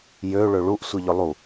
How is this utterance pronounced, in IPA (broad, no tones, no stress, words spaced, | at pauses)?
jø ɭøɭuʔ sʷiʎʏlˠu